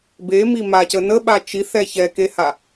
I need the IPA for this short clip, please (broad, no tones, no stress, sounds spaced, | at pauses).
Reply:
b e m i m a c ə n ə ɓ a t͡ʃ i θ ɛ ç ɛ k e h a